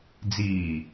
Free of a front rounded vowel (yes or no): yes